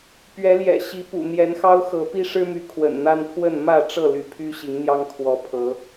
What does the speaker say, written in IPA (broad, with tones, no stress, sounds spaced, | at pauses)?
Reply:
p ɥ ɛ˨˦ l j ɛ̰˨˩ ɕ i˨˦ p ṵ˨˩ n̪ j ɛ˨˦ n x ɑ˦ ʊ̯ x ɤ˨˦ p i˦ ʂ ɻ̩˦ m y˨˦ kʰ w ə̰˨˩ n n̪ a˦ n pʰ w ə˥˨ n m ä˥˨ ʈ͡ʂ ɤ˥˨ l y˨˦ pʰ y˦ ɕ i˨˦ ŋ n̪ j ɑ˦ ŋ kʰ w ɔ˨˦ pʰ ɤ˨˦